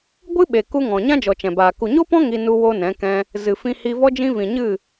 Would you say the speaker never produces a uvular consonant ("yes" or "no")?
yes